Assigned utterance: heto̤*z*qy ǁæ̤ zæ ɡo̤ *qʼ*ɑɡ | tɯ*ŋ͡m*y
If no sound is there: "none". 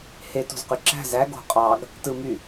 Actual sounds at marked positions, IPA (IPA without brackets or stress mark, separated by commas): z, qʼ, m